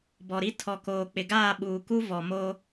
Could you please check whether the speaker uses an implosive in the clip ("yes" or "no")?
yes